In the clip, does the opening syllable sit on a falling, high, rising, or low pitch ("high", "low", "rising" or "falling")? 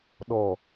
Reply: low